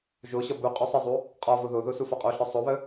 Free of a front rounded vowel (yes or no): yes